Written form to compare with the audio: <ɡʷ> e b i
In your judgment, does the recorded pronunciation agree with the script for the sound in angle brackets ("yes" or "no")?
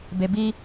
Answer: no